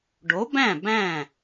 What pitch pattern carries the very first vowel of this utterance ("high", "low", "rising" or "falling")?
rising